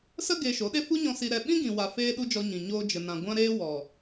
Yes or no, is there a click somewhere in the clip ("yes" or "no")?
no